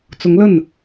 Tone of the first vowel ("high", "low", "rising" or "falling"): rising